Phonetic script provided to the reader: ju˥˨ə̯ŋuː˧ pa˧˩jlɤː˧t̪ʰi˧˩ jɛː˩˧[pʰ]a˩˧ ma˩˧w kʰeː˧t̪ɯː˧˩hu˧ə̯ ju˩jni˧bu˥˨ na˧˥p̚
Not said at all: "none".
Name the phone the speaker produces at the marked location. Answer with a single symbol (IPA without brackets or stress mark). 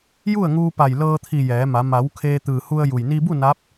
m